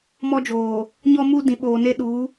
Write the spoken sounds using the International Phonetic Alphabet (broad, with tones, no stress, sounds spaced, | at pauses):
m ɔ˦ d͡ʒ oː˨ | ɲ ɔ˦ m u˦ d ĩ˨ ɓ oː˨ n e˦ ɗ uː˨˦